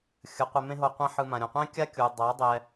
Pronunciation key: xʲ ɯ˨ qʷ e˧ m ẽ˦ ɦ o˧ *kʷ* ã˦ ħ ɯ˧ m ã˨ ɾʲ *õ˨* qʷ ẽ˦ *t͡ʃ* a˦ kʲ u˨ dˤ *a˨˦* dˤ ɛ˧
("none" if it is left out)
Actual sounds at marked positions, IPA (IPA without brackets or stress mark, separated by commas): qʷ, õ˨, kʲ, a˨˦